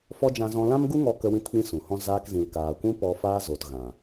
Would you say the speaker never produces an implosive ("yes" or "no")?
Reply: yes